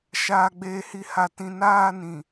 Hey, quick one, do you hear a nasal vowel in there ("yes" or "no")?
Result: yes